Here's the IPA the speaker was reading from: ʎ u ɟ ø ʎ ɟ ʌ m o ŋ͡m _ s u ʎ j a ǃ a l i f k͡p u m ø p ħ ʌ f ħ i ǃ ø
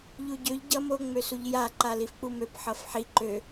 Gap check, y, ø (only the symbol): ø